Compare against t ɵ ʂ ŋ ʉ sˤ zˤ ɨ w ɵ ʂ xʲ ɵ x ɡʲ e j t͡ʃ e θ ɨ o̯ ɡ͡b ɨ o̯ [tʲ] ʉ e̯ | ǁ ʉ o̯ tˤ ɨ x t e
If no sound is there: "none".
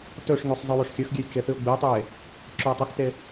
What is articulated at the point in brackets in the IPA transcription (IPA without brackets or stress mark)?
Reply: tˤ